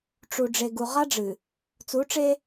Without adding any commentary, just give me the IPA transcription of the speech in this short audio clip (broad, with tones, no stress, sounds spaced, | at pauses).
ʈ͡ʂ u˨ ɖ͡ʐ e˨ ɡ u˨ ʁ a˦ ɖ͡ʐ ɨ˨ | t͡s u˨˦ ʈ͡ʂ e˦